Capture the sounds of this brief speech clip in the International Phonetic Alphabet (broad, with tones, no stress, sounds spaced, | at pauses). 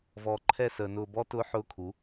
v ɔː˨ ǃʰ ɛ˦˨ s əː˨ n ʊː˧ b ɔ˦ t ʊː˦ ħ ʊː˦ kʰ u˨˦